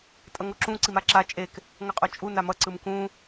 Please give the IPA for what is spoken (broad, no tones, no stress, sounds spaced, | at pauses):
tʼ ʌ ŋ o ǁ ũ ǀ i m a ǁ a t͡ʃʼ e k | ŋ ʌ qʼ o t͡ʃʼ u n a m ʌ ǀ ɯ m k ũ